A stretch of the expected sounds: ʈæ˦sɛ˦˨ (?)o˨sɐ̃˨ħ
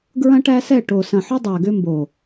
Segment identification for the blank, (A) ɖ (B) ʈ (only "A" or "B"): B